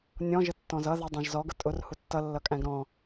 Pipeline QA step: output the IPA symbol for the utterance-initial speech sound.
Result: nʲ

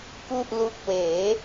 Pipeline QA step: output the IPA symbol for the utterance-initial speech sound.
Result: k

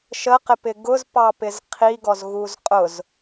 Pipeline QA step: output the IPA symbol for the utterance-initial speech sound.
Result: ʃ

